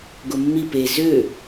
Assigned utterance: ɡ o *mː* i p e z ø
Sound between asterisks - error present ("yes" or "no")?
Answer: no